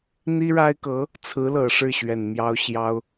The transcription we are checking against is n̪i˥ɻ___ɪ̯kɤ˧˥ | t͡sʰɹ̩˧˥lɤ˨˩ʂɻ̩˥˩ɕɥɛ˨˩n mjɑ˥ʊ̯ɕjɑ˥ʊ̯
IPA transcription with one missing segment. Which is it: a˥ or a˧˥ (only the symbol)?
a˥